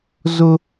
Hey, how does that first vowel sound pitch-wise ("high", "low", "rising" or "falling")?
high